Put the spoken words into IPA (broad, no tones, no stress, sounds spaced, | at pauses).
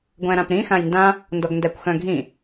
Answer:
ɡʷ æ̃ ɾ ã p ɾ ĩ x ã j n d ã | n d ɔ ɡ n d æ kʷ x œ̃ ɡʱ ĩ